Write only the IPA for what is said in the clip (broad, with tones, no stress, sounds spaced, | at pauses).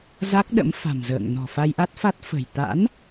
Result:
z a˦˥ k̚ ɗ ə̰˧˥ m f a̤˨˩ m z ə̰ː˧˨ ŋ n ɔ̤˨˩ f a˧ j ʔ a˦˥ t̚ f a˦˥ t̚ f ə̤˨˩ j t̪ a̰˧˥ n